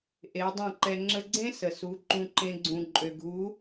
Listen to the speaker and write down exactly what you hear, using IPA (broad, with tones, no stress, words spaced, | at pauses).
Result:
ʔe˨˦ dˤẽ˦˨ǃɛ˧ ŋ͡ǁə˧ɡ͡ǀẽ˦ sə˨su˨˦ ǃũ˧ǃẽ˧ ɡ͡ǀũ˨ ǃʼø˨ɡʱu˨˦